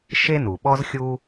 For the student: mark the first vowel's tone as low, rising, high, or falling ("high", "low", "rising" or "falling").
high